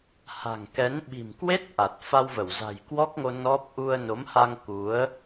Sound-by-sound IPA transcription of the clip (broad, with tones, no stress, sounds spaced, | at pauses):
h a̤˨˩ ŋ k ɛ˨˦ n ɓ i̤˨˩ m k w e˦˥ t̚ ʔ a˨˩ t̚ f a˧ w v ə˧˩ w z a̤˨˩ j k w ɔ˦˥ k̚ ŋ o˧ n ɔ˦˥ p̚ ʔ u˧ ə̯ n o˨˦ m h a˧ ŋ k u˨˦ ə̯